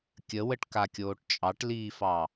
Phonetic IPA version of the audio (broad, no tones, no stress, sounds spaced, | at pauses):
kʲ ə w ə ʈ k a kʲ oː ʈ t͡ʃʼ ɑ ʈ l iː f ɑ